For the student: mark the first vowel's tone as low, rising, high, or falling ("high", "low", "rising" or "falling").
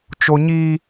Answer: high